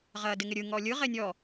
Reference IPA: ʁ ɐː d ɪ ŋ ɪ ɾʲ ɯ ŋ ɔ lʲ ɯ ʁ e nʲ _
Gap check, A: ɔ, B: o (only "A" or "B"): A